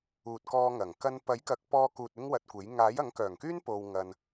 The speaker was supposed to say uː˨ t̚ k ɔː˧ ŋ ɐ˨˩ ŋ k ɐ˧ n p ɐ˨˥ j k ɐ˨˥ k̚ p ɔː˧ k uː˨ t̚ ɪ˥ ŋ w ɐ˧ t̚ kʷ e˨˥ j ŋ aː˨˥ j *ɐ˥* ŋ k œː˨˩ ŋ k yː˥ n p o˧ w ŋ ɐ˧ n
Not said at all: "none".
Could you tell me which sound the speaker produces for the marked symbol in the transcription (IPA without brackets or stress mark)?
ɐ˨˥